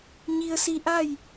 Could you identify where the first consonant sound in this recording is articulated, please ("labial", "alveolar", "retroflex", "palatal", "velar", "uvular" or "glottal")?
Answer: palatal